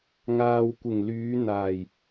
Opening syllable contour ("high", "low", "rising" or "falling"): low